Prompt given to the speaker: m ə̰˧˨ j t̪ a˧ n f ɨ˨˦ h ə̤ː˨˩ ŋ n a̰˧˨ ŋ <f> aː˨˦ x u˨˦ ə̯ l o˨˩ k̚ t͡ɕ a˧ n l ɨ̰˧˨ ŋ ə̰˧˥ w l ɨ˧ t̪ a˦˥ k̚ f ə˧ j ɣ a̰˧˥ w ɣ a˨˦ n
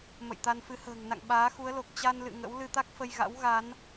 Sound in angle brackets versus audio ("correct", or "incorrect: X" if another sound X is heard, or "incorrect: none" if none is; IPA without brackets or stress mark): incorrect: ɓ